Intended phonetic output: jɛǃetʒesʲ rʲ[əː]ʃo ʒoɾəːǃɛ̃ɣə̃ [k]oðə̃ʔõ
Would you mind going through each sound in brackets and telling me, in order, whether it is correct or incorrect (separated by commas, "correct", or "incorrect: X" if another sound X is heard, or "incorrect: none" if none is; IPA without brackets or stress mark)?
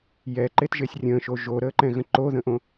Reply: incorrect: ə̃ː, incorrect: ǃ